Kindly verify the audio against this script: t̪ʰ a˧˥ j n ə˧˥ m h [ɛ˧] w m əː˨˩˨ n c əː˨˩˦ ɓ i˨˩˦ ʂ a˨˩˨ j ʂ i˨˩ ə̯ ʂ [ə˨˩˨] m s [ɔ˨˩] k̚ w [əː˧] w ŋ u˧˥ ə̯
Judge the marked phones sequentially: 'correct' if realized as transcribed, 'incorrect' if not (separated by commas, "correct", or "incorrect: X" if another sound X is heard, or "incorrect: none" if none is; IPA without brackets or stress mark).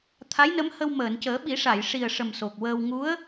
incorrect: ə˧, incorrect: ə˨˩, incorrect: o˨˩, correct